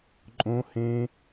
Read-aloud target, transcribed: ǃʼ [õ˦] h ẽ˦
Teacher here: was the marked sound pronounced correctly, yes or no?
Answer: yes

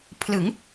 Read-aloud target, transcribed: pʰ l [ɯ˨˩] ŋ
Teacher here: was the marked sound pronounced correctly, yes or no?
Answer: no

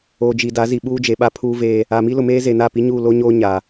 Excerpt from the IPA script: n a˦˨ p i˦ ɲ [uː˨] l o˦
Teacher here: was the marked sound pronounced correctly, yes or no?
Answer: no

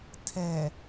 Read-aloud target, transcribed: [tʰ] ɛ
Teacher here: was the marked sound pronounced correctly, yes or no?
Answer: yes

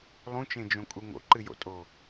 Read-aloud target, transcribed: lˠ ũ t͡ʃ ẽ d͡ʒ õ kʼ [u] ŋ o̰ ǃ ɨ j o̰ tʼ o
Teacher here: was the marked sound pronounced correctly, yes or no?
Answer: yes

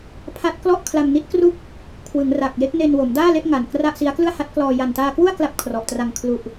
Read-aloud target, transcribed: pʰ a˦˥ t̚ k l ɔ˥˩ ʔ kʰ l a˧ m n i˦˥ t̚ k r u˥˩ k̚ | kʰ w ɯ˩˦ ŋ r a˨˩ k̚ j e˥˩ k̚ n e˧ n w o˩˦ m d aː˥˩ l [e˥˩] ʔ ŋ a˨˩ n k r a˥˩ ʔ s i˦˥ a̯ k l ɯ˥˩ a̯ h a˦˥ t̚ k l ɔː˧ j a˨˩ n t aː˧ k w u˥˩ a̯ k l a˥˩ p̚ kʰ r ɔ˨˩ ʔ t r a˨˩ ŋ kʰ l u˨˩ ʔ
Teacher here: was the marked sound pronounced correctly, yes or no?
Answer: yes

